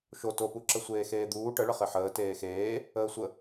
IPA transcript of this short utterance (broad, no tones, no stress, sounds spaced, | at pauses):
ʃ o t o p u ǁ ə sʷ eː x eː d̪ uː ʈ ə ɭ ə χ e ħ əː t eː x eː | əː sʷ ə